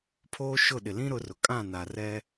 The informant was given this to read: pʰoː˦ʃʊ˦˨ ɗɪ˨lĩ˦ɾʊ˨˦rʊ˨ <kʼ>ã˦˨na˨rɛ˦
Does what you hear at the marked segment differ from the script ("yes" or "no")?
no